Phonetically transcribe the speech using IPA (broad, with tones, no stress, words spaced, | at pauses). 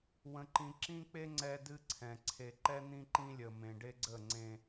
wə̃˨ǃĩ˨ ǁĩ˦k͡pe˦ ŋ͡ǀɛ˦dɨ˦ ǀʰɛ̃˨ ǀʰe˨ǃɛ˦n̪ĩ˦ ǃĩ˦lʲə˨mẽ˨ ɖe˦ɡ͡ǀə˦˨ŋ͡ǀẽ˦